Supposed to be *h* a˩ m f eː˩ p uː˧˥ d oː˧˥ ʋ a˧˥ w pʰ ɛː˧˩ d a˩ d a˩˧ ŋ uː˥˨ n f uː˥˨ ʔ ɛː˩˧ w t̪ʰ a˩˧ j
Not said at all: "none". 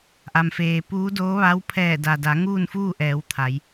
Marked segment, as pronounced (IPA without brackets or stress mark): ʔ